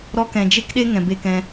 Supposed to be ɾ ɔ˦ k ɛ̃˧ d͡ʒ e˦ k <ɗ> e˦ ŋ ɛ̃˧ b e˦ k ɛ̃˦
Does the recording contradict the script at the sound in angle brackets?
no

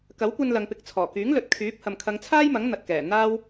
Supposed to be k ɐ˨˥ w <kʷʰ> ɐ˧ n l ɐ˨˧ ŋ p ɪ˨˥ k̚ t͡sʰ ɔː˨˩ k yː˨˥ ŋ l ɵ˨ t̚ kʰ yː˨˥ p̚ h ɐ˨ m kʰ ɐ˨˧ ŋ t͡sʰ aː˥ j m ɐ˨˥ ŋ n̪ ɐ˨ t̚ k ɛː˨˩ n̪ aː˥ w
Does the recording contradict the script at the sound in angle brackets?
yes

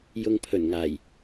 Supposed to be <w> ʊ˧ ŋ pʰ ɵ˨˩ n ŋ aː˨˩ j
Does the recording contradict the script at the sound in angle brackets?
yes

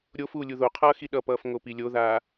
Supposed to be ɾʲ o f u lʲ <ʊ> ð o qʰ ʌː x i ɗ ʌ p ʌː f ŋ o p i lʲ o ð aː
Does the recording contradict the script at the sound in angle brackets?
yes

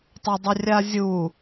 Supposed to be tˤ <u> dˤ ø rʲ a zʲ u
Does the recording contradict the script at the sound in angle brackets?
yes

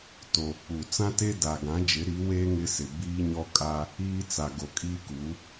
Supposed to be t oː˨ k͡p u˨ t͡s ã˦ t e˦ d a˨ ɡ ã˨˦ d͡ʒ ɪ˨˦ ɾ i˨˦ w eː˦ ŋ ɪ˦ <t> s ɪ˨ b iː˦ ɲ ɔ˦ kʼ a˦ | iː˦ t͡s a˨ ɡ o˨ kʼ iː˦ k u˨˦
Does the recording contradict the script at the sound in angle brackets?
yes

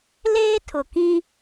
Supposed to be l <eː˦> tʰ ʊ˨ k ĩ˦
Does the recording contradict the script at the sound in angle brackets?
no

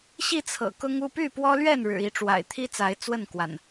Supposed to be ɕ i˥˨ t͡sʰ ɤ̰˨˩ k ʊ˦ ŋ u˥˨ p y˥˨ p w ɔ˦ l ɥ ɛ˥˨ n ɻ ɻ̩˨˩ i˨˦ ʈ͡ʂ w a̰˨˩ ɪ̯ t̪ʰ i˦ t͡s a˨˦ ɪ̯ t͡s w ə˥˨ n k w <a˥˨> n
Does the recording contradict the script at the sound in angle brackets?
yes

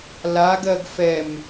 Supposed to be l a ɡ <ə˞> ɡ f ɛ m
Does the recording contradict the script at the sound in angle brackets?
yes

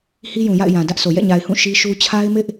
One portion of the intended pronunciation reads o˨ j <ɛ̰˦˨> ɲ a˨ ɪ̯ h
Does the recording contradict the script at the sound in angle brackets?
no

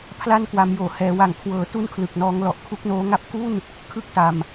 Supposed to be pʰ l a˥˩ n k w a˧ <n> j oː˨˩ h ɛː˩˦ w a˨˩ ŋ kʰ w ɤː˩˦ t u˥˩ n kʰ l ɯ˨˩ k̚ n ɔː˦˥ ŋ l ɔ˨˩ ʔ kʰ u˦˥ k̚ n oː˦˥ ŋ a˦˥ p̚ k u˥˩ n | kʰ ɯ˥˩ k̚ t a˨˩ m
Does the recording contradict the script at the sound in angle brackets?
yes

